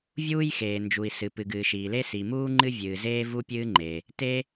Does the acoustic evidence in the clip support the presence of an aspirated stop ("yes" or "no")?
no